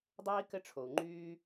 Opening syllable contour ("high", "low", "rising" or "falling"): high